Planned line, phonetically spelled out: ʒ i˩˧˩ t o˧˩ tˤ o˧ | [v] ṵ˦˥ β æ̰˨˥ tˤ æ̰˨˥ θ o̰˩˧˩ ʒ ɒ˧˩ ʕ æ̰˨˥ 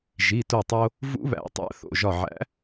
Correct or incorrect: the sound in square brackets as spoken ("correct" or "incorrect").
correct